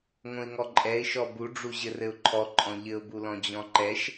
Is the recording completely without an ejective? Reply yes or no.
no